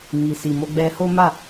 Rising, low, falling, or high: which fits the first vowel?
low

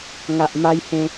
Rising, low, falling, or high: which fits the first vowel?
low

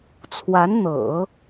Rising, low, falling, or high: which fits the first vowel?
rising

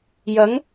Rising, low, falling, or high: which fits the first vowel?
rising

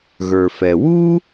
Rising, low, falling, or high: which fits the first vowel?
low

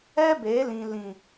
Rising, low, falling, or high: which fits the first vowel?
high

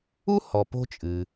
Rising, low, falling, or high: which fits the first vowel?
high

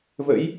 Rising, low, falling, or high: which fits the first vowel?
rising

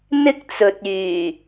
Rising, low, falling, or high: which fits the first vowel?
high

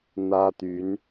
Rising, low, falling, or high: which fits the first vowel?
high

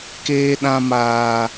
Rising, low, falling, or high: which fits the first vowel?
high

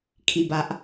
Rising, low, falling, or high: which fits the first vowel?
falling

